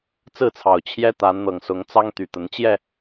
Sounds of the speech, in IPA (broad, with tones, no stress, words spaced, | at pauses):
t͡sɹ̩˥˨t͡sʰɑ˨˩ʊ̯ t͡ɕʰjɛ˦t̪a˨˦n n̪ɤ˨˩ŋsʊ˨˦ŋt͡sɑ˦ŋt̪y˨˩ t̪ə˨˦nt͡ɕjɛ˥˨